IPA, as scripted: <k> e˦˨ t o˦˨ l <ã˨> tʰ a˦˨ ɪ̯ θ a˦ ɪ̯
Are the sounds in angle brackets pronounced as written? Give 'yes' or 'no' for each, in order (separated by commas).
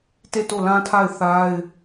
no, no